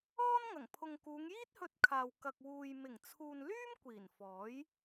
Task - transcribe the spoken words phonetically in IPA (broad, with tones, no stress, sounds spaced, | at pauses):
ɔː˥ n ŋ ɐ˨˩ ŋ pʰ ʊ˨ ŋ k uː˨˧ ŋ j iː˥ t̚ h ɵ˧ t̚ kʰ aː˨ w k ɐ˨ k̚ w uː˨ j m ɪ˨˩ ŋ t͡sʰ uː˨ n l yː˥ m kʷ iː˨˩ n f ɔː˨˥ j